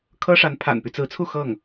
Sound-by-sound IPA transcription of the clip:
kʰ ɤ˥ ʂ a˧˥ n pʰ a̰˨˩ n p y˦ t͡s ɹ̩˧˥ t͡sʰ u˥˧ x ɤ˥˩ ŋ

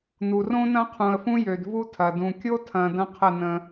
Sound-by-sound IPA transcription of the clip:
n u˨ r õ˦ n ɐ̃˦ qʰ ũ˨ ə̯ f ũ˦ j ø˨ d v u˦ tʰ ɐ˨ d ũ˨ kʲ o˦ tʰ ɐ̃˨ d ɐ̃˦ qʰ ə˦˨ n ə̃˦

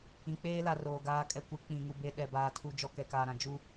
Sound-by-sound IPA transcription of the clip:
ĩ˨ k͡p eː˦ l a˨ r oː˨ ɡ aː˨˦ kʼ ɛ˨ kʷ e˨˦ k͡p ĩ˨ ŋ u˨ b e˦ ɗ ɛ˨ b aː˨ tʰ u˨ d͡ʒ ɔ˨ k ɛ˨ k aː˨ ɾ ã˨ d͡ʒ u˦

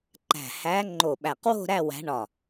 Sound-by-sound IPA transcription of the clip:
ǃ æ̤˧˩ h æ˧˥ ŋ͡ǃ o˧˩ ɓ æ˧˩ q w o̤˥˧ ɾ æ˥˧ w æ̤˧˥ ɳ ɒ˧˩

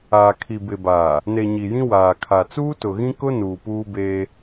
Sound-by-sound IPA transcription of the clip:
aː˨ kʰ i˨ b ɪ˨ b aː˨ | n e˨ ɲ i˨ j ĩ˦ w aː˨ kʰ a˨ t͡s uː˦ t ʊ˨ ɣ ĩ˦ k ʊ˦ n uː˨ p uː˦ b eː˦

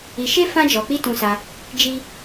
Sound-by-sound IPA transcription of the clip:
i˧ ʃ e˦ f ã˦ d͡ʒ ɔ˧ k͡p i˦ t ũ˧ s a˧ | d͡ʒ i˦

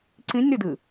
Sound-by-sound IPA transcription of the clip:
ǀ ĩ nʲ ɾ ɨ d ɨ

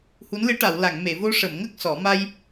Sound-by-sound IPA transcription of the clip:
h u˧˥ n l ɨ˧˥ ʈ a˨˩˨ w l a˨˩˨ ŋ m e˨˩˨ v o˧ ʂ ə˨˩˨ m ŋ ə˦˥ k̚ s ɔ˨˩˦ m a˧ j

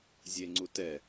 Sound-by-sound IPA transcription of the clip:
zʲ e ŋ͡ǀ u t ɛ

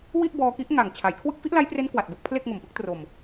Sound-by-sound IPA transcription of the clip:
w i˥˩ ʔ b ɔː˧ k i˦˥ ʔ ŋ a˨˩ ŋ t͡ɕʰ a˩˦ j kʰ w ɯ˦˥ k̚ f i˦˥ ʔ l a˦˥ j p r e˦˥ n k w a˨˩ t̚ b o˦˥ k̚ pʰ l e˥˩ k̚ ŋ o˨˩ m p ɯ˦˥ k̚ t r o˨˩ m

